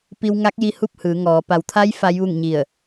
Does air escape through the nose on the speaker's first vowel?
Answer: no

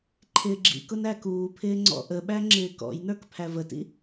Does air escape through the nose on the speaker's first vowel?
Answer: no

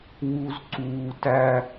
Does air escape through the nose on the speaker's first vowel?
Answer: no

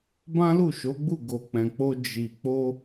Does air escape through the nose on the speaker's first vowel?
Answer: yes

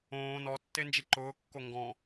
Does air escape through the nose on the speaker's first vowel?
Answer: yes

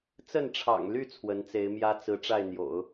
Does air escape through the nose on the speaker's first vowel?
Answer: no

